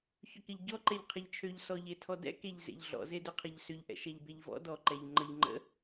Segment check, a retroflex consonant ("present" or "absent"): absent